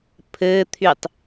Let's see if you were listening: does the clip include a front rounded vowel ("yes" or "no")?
yes